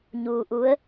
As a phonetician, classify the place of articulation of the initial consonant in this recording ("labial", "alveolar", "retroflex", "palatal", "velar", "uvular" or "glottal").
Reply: palatal